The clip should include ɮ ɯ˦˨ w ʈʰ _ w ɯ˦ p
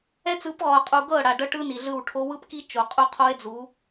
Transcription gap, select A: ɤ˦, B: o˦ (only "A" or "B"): B